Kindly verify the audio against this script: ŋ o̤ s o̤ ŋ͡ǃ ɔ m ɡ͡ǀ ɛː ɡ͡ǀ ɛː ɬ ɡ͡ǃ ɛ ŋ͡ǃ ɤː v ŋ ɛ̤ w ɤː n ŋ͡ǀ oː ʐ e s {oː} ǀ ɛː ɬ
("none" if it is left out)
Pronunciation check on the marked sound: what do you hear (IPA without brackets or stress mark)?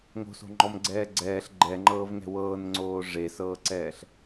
ɤː